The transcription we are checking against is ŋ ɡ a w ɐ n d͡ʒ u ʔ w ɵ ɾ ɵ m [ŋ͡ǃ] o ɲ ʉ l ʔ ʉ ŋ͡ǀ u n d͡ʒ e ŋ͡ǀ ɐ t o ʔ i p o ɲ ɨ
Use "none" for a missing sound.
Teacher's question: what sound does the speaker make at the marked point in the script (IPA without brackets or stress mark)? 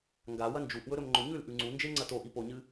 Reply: ŋ͡ǃ